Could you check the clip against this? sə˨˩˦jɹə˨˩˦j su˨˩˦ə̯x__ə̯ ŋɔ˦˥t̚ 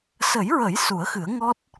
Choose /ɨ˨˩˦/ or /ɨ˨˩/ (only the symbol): ɨ˨˩˦